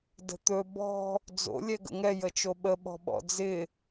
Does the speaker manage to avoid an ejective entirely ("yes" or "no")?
yes